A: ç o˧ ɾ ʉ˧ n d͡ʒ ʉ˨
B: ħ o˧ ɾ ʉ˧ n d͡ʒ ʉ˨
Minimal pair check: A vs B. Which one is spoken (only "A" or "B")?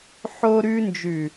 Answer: B